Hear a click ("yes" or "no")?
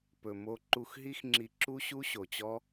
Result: yes